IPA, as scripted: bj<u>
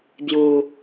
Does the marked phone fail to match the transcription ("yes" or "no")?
no